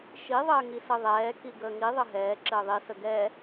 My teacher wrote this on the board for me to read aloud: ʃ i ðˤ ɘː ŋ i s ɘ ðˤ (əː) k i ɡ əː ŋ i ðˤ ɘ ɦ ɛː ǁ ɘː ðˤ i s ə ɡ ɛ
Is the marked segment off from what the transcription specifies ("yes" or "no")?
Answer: yes